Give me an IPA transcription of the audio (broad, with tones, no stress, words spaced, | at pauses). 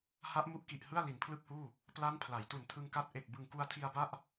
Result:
ha˦˥ʔmu˦˥ʔki˨˩ʔ hɯ˥˩a̯li˩˦npʰlɯ˥˩k̚huː˥˩ | pla˦˥n pʰla˩˦jtu˨˩ntʰɯ˧ŋka˦˥t̚ ʔe˨˩k̚ bɯ˨˩ŋku˧a̯tʰi˧a̯ba˥˩ʔ